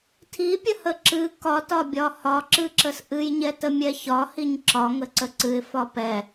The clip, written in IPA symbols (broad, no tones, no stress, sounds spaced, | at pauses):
tʰ i pʲ ə h ə ǁ ɨ k ɒ t ɒ bʲ ɒ h ɒ ǁ ɨ ǁ ə s ʔ ɨ j ɲ ɛ t ə mʲ ɛ ç ɒ h i ɲ ǁ ɒ ŋ ə ǀ ə ǀ ɨ ɪ̯ f ɒ p ɛ